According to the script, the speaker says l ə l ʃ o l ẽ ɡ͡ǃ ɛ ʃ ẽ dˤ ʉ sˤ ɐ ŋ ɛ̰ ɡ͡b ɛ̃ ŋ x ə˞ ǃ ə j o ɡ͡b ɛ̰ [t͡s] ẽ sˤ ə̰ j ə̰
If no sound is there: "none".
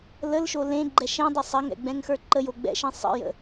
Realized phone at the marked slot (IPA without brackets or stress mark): ʃ